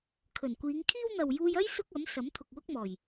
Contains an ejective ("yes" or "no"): no